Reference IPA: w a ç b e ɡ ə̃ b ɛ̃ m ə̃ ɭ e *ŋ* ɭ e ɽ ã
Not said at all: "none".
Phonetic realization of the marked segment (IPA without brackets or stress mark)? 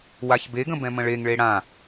ŋ